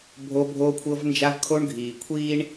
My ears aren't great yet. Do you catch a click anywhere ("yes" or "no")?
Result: no